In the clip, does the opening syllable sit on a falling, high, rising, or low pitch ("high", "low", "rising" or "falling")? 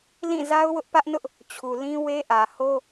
falling